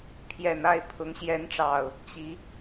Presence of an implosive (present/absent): absent